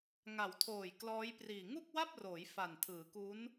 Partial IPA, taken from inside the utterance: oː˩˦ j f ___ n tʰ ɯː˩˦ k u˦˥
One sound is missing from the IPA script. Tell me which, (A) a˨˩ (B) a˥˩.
A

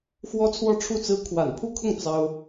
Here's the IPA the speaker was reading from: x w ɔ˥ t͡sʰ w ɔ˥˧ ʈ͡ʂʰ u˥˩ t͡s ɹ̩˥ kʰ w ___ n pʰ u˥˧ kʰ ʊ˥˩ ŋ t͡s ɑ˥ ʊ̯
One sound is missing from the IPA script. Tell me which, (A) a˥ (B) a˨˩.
B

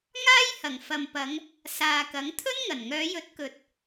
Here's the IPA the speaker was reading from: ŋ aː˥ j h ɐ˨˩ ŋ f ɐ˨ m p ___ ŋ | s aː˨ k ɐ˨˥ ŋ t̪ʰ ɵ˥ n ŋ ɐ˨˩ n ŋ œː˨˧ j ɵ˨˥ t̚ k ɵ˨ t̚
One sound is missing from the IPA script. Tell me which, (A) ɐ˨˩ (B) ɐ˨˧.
B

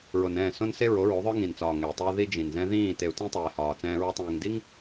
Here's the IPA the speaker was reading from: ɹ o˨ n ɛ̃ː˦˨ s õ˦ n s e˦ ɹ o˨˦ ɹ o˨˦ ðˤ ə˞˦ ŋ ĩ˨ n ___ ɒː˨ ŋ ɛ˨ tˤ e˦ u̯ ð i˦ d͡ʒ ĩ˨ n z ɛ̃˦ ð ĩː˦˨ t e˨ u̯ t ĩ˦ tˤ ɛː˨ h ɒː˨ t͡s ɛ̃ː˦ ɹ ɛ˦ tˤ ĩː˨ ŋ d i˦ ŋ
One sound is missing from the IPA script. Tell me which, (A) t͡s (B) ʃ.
A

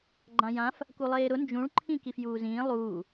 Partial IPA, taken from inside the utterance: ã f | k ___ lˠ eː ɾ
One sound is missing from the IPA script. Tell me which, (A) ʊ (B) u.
B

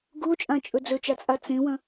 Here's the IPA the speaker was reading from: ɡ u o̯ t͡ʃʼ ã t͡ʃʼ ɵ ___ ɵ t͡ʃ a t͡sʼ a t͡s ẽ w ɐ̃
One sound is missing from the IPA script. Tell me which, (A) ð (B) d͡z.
B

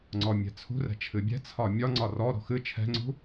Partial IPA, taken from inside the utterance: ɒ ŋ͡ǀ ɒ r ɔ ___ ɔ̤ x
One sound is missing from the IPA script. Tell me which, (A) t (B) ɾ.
B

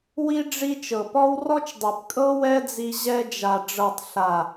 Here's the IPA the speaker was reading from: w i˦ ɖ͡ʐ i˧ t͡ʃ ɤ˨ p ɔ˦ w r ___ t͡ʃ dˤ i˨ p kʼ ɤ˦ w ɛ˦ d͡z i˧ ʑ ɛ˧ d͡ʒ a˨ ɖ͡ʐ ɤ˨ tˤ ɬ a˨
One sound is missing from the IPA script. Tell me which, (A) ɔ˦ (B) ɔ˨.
A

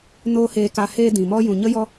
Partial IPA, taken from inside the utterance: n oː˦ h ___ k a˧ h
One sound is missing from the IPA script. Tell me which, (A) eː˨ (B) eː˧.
B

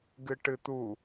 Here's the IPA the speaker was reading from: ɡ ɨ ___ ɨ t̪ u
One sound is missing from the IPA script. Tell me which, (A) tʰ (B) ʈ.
B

